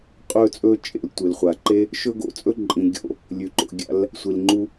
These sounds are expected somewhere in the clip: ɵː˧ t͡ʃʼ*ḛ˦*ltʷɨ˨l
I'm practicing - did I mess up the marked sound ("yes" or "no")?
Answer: yes